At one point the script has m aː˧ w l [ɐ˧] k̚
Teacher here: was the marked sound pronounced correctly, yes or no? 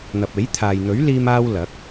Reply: no